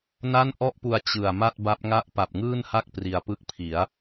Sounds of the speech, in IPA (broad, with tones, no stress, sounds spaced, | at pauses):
n a˥˩ n ʔ ɔ˥˩ ʔ p u˧ a̯ t͡ɕ ɯ˨˩ a̯ m a˥˩ t̚ b a˦˥ p̚ ŋ a˥˩ ʔ p a˨˩ p̚ ŋ ɯː˥˩ n h a˥˩ k̚ p r i˧ a̯ p ɯ˥˩ k̚ pʰ i˩˦ a̯